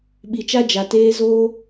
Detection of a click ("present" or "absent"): absent